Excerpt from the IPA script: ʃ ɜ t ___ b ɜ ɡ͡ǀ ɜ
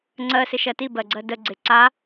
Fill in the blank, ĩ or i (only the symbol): i